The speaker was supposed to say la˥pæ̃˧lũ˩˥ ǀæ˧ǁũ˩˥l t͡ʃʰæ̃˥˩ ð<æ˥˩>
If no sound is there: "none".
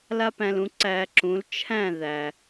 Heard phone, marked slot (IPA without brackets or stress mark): æ˩